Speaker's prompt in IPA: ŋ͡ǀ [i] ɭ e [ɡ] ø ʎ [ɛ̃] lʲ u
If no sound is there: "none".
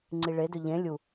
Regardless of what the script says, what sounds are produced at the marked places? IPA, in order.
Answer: i, d, ẽ

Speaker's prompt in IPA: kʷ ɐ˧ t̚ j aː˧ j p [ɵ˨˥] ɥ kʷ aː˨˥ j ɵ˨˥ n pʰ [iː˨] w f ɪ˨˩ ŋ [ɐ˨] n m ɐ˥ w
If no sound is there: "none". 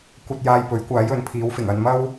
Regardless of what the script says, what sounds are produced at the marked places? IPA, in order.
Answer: ɵ˨˥, iː˨˥, ɐ˧

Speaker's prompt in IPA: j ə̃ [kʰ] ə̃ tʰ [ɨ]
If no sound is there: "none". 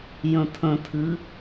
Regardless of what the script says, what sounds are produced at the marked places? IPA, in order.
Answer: tʰ, ɨ

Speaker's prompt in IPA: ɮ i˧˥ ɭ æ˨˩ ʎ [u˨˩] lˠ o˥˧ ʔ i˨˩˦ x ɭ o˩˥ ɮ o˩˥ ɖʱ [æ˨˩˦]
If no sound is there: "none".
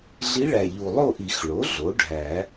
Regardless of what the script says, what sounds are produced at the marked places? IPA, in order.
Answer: u˨˩, æ˨˩˦

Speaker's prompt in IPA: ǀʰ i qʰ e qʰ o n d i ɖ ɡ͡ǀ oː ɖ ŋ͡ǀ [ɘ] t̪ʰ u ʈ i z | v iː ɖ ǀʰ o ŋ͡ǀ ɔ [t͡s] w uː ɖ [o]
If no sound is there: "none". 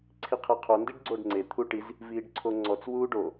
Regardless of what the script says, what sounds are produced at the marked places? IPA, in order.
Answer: e, t͡s, o

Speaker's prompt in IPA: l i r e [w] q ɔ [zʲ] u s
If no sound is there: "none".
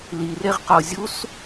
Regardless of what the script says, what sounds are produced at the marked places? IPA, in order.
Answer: ʁ, zʲ

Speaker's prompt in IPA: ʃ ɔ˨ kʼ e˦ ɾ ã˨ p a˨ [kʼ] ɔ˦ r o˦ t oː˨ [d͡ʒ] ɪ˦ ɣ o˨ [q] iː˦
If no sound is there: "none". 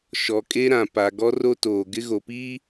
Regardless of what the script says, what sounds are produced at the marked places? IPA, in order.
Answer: ɡ, ɡ, p

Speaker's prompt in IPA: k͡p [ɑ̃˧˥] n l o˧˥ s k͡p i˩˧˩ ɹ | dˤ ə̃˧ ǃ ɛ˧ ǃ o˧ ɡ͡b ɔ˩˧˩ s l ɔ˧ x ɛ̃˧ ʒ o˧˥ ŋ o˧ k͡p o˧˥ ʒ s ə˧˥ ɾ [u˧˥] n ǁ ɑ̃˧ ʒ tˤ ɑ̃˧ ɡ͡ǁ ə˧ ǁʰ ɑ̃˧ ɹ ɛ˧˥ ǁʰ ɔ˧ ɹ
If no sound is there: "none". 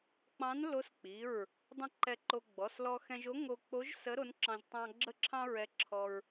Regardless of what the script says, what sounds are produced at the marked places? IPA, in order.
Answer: ɑ̃˧˥, o˧˥

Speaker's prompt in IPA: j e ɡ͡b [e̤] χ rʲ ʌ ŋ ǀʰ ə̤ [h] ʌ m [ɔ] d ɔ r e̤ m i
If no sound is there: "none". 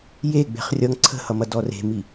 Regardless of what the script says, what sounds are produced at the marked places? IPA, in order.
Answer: e̤, h, ʌ

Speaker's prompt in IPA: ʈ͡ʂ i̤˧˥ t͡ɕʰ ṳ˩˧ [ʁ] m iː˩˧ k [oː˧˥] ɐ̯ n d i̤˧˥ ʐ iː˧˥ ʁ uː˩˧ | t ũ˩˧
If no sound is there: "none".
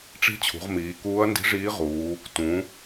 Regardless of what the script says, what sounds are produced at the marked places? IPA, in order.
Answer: ʁ, uː˧˥

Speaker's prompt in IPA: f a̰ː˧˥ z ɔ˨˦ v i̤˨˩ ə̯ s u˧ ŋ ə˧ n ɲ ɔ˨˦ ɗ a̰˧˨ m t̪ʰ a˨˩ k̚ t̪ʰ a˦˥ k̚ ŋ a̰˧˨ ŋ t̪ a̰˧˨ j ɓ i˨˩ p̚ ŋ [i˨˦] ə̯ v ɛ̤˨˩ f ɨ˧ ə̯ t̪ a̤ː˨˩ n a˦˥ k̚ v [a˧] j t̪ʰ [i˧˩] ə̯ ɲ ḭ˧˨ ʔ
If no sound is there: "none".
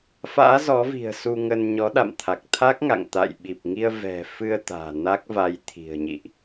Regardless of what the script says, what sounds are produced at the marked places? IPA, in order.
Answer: i˧, a˧, i̤˨˩

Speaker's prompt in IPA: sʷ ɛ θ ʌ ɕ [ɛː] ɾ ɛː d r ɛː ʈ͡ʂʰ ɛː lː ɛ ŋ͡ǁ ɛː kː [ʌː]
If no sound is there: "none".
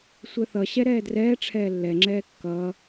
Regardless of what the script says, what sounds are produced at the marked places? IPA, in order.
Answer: ɛ, ʌː

